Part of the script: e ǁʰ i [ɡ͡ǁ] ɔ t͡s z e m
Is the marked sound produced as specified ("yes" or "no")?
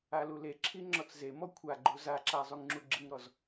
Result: no